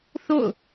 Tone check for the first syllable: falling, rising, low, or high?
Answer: falling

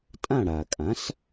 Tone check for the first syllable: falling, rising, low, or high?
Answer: falling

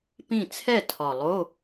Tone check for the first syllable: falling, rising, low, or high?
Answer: falling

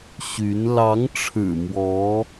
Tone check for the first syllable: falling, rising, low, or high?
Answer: rising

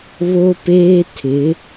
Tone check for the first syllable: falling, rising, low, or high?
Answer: high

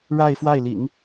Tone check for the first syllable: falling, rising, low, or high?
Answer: falling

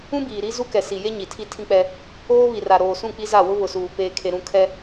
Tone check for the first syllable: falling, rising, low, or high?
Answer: high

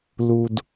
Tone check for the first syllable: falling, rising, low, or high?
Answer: high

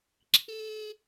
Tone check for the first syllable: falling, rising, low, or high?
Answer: high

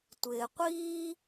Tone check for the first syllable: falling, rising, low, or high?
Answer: low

